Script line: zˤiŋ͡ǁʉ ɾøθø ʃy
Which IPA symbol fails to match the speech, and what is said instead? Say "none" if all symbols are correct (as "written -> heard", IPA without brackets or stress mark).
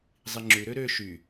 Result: θ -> ɾ